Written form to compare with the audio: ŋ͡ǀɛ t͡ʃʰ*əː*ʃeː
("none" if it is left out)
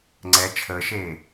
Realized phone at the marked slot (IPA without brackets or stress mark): əː